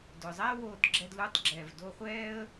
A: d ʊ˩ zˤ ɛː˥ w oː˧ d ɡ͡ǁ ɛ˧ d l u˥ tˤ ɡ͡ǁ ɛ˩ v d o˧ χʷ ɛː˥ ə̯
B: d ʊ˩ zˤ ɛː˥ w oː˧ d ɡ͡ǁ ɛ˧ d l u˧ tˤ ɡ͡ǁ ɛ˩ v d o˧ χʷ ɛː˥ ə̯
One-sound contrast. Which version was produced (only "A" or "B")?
B